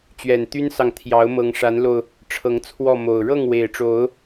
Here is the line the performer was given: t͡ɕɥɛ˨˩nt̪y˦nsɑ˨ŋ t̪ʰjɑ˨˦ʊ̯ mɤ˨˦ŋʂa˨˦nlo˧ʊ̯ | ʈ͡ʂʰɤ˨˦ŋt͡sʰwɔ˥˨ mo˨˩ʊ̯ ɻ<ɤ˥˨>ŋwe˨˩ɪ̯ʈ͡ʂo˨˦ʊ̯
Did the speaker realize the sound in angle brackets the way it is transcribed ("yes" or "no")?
yes